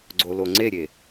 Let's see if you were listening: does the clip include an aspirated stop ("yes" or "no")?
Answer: no